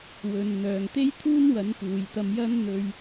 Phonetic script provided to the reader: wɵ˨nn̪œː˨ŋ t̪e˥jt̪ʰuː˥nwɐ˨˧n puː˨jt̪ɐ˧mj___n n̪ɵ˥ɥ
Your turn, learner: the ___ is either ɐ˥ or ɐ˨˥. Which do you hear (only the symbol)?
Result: ɐ˥